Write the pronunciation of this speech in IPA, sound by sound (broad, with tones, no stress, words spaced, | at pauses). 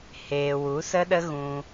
heː˨ wu˨˦sə˦ɗə˦ɣũ˧